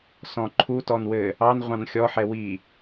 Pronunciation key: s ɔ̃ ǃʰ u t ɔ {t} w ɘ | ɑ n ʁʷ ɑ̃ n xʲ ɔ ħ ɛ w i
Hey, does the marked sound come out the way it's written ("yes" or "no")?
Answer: no